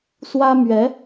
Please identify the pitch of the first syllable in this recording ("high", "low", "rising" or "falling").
high